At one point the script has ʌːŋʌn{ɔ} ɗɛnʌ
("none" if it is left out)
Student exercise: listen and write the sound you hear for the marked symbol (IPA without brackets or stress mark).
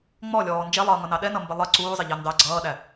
ɑ